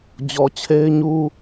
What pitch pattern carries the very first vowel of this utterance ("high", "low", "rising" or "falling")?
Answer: low